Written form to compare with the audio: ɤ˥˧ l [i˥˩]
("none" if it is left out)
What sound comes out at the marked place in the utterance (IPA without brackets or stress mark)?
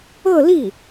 i˥˩